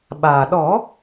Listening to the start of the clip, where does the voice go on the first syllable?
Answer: low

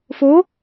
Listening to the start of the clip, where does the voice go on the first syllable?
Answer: rising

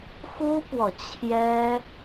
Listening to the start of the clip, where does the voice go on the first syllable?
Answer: high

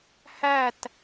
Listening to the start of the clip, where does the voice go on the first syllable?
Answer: falling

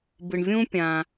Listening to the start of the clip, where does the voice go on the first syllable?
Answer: low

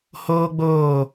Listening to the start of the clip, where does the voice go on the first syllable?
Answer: high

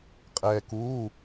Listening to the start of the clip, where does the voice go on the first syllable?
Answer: low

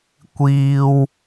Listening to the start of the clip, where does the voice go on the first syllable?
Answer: high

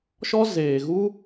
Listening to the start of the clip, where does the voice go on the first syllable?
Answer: high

